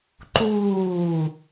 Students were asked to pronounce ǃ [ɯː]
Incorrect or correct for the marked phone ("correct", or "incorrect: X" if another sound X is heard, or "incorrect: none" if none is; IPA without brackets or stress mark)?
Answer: incorrect: uː